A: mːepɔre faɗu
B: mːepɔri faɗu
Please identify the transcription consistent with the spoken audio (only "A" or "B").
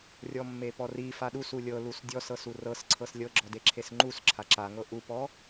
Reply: B